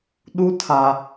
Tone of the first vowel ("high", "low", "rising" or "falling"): high